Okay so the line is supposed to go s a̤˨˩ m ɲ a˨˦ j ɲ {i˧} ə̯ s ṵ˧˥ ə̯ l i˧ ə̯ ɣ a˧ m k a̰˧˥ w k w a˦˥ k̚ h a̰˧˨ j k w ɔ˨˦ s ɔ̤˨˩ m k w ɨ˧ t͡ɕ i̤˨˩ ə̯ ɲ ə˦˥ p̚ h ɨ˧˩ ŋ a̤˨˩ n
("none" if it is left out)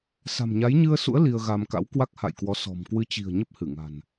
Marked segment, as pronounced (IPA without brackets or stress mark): ɨ˧